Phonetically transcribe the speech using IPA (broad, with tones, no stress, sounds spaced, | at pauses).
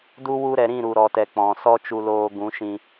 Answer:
d u˧ w u˧ ɾ ɛ˨ ɾ ĩ˦˨ ɾ u˧ ɾ ɔ˧ t ɛ˧ k͡p ɔ̃˨ s ɔ˦ t͡ʃ u˧ l oː˧ ɡ ũ˨˦ ʃ ĩ˧